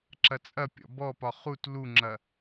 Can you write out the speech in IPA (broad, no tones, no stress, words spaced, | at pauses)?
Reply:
ǁɐt͡sʼɐpʲɔ̰ bɔpɒ χut luŋ͡ǁɐ